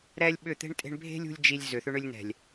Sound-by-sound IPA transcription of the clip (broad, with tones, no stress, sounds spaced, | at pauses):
ɾ ɛ˦ lʲ ɓ ʏ˦˨ t̪ e̤˦ ɳ tʼ e̤˦ ɳ bʱ e̤˦ lʲ ṳ˧ lʲ d͡ʒ i˧ lʲ z ʏ˨ θ ʏ˧ ɳ ʏ˧ lʲ n ɛ̤˨ lʲ